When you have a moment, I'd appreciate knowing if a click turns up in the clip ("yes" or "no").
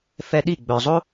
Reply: no